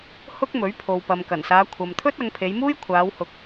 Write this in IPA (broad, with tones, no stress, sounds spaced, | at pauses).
h ʊ˥ k̚ m ɵ˨˥ ɥ pʰ o˨ w p ɐ˨ m k ɐ˨˩ n s aː˨˧ kʷʰ ɐ˨ m t̪ʰ ɵ˥ t̚ ɐ˨˧ ŋ pʰ e˨˧ j m uː˥ j kʷʰ aː˨˧ w h ʊ˨˥ k̚